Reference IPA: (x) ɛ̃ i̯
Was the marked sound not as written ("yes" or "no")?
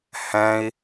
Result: yes